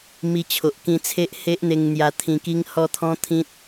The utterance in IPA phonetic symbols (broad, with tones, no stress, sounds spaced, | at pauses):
m i˨˩ t͡ɕʰ o˨ ʔ k ĩ˧ t͡sʰ e˦ ʔ h e˦ ʔ n̪ e˧ ŋ n̪ j a˧ t̪ʰ ĩ˧ k i˦ ŋ h ɔ˥˧ t̪ʰ ɔ̃˦ t̪ʰ ĩ˦ t̚